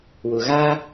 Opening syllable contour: low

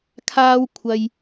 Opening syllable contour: high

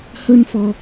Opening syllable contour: high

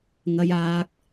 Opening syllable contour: high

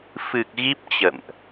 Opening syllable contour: low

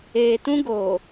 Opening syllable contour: low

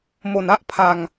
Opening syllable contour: low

